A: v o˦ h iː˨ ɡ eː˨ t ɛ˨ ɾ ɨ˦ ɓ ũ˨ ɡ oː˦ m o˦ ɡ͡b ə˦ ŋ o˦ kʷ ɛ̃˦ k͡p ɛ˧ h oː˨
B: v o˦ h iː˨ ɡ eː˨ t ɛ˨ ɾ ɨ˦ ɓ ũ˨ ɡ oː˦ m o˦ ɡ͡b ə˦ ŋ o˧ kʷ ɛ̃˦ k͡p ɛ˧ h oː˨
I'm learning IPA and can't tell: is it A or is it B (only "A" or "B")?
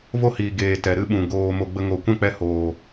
B